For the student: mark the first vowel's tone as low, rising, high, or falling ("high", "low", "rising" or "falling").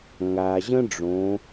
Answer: low